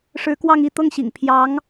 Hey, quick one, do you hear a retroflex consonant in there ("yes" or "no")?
yes